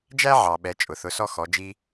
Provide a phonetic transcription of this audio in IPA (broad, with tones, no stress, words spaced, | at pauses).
d͡ʒæ˥ʕɑ˩ ɓɛ˩˧ t͡ʃʼʊ˩θʊ˩˧sɔ˧ xɔ˩˧d͡ʒi˧